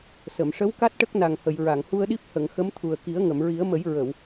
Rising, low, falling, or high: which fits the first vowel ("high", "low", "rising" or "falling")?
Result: low